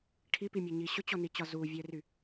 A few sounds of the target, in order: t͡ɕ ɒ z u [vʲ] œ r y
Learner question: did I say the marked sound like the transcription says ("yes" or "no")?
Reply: yes